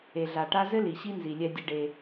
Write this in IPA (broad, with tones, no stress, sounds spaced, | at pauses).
e˨ ɮ a˨ ʈ a˦ z ɘ˦ l i˨ ɕ i˦ n z i˨ lʲ ɛ˦ dʲ ɨ˦ ɖ e˦